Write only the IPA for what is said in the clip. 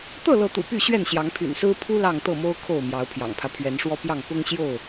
t̪ɤ˥˨lɤ˨˦t̪ṵ˨˩ py˥˨ɕɥɛ˥˨n ɕjɑ˨˦ŋpʰy̰˨˩nsɹ̩˦ pʰu˦ lɑ˥˨ŋt̪ɤ˥˨ mo˦ʊ̯ kʰo˥˨ʊ̯ mjɑ˨˦ʊ̯pʰjɑ̰˨˩ŋpʰä˦ pʰɥɛ˨˦nʂwɔ˦ pjɑ˥˨ŋ pʊ˦ŋ ɕjo˥˨ʊ̯

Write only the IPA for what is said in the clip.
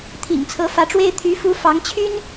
t̪ʰḭ˨˩ŋt͡sʰɤ˧˥fä˧˥ʈ͡ʂwe˥ɪ̯ t̪ʰy˧˥ fu˧˥ fɑ˧˥ŋt͡ɕʰy˥n

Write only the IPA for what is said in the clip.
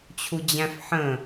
t͡ɕʰud͡ʑæ̃fħə̃

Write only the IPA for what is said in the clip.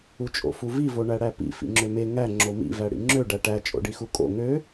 ut͡ʃʼo̰fuvi voɳæɽæpḭ fḭŋ͡ǁøme ŋæ ŋ͡ǁomḭ væɽḭŋ͡ǁø ɖæʈæ t͡ʃʼo̰ɖixukʼo̰ ŋø

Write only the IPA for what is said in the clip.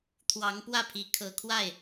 t̪ʰwɑ˧˥ŋpwä˥˩pʰi˧˥ kʰɤ˨˩kʰwa˥˩ɪ̯

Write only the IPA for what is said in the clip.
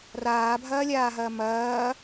raːbʱɐːlʲaːɦɐː mɐː

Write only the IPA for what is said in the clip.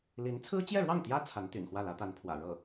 li˧˥n t͡sʰɹ̩˥t͡ɕjɛ˥˧ɻwɑ˥˩ŋt̪jä˥ t͡sʰa˧˥nt̪y̰˨˩n xwä˥˩lä˧˥t̪a˧˥npʰwä̰˨˩ ɻɤ˥˩

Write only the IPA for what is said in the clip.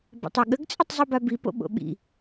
ba̰tˤoɠəɡ t͡sʼɨtˤzˤubabi po̰ɓo̰ɓḭ

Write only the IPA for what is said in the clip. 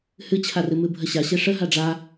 hɨt͡ɕʰarɨ mɨbʱəɕa ɕeʂə ɦaɖ͡ʐa

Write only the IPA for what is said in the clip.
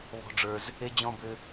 βɔ̤˥ɖ͡ʐə˞˥z | e˥d͡ʑɔ̃˥bɘ˥

